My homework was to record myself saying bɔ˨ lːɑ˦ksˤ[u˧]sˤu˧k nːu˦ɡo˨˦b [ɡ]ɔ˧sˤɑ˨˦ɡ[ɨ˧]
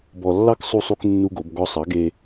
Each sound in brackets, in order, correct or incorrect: correct, correct, incorrect

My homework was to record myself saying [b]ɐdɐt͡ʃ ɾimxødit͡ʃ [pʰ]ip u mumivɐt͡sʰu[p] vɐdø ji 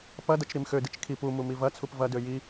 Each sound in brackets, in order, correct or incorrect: incorrect, incorrect, correct

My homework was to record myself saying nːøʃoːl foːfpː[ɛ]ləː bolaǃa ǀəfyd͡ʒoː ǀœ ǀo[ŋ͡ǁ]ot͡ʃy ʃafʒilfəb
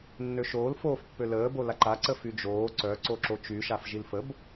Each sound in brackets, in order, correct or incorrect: incorrect, incorrect

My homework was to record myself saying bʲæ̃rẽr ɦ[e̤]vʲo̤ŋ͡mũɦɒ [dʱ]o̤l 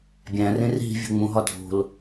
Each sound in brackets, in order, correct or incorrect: incorrect, correct

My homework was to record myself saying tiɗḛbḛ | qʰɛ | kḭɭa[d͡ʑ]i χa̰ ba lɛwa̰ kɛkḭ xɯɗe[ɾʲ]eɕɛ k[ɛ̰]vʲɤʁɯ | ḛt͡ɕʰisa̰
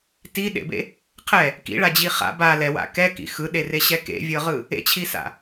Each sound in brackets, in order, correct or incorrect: correct, incorrect, incorrect

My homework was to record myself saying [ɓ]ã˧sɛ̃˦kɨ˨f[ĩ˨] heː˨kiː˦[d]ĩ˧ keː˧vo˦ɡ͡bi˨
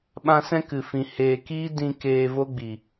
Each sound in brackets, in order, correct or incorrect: correct, correct, correct

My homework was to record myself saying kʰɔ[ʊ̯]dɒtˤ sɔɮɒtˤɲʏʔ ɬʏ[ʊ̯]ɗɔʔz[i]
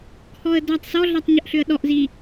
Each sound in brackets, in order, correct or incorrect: incorrect, incorrect, correct

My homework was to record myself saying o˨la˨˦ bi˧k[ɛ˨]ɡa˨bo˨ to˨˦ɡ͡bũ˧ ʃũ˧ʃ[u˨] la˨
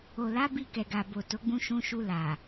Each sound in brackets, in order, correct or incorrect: correct, incorrect

